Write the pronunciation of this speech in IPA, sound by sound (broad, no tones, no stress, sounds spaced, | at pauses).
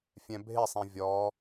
fʲ ɛ̃ bʱ ɪ sˤ ĩ vʲ ɔ